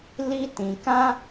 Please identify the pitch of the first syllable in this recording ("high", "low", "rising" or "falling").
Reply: high